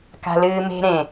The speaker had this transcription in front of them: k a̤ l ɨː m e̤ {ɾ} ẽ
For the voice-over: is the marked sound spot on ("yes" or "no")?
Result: yes